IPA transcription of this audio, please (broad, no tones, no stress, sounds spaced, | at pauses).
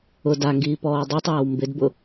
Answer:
ʊ d a ŋ ɡ iː p ɔː dˤ i tˤ w a w m b ɪ d b ʊ